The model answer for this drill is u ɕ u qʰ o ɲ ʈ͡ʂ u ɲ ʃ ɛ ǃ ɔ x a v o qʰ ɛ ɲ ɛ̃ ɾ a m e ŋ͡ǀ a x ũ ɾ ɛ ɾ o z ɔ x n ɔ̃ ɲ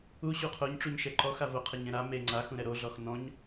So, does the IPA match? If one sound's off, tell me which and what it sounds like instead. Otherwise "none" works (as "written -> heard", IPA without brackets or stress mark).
z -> ɮ